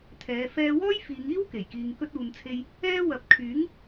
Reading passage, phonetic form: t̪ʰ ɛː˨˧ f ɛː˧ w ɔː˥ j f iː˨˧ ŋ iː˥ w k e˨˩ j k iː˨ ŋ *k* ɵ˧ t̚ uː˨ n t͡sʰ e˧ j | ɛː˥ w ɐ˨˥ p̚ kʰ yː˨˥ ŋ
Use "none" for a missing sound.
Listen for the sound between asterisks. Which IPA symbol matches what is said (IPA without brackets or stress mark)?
k